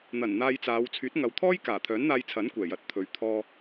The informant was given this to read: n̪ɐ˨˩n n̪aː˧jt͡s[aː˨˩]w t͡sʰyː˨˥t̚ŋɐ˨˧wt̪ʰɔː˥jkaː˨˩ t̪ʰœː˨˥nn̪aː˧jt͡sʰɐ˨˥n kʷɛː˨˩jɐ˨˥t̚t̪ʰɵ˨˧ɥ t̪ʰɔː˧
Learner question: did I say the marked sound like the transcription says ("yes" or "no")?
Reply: no